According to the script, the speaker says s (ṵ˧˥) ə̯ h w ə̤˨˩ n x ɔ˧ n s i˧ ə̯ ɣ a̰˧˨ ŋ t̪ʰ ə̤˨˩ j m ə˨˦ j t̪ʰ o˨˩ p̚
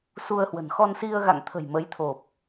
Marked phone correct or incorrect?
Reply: incorrect